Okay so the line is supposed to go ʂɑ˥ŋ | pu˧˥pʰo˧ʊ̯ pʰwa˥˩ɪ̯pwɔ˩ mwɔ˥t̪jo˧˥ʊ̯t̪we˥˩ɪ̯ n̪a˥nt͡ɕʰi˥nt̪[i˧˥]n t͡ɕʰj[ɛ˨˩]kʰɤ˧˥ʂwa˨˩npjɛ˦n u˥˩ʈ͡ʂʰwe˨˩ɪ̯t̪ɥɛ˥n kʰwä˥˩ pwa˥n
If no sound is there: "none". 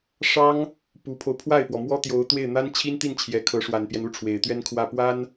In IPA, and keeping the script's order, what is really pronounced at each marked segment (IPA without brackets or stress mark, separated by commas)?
i˥˩, ɛ˨˩